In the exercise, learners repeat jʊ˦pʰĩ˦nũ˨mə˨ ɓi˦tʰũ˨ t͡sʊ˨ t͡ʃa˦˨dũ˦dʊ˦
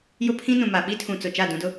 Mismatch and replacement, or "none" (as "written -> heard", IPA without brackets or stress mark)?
ə˨ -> a˨